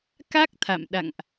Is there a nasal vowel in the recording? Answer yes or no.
no